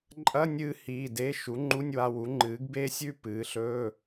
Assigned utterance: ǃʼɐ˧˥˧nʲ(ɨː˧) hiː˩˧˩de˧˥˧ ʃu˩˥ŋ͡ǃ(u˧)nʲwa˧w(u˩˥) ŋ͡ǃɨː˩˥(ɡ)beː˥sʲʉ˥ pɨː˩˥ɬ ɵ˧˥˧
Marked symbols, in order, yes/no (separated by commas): yes, no, yes, yes